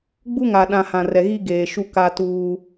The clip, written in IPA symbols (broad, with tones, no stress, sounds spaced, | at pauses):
ɡ͡b u˦ ŋ a˨ ɗ ã˨ h ã˨ r ɛ˨ ɣ i˦ ɡ eː˨ ʃ u˦ k a˦ t uː˦